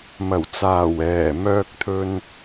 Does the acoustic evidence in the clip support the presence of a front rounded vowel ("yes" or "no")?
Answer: yes